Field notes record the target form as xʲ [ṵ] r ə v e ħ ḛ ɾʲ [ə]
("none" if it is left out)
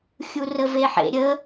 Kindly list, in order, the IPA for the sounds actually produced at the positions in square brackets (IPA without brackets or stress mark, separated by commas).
u, ə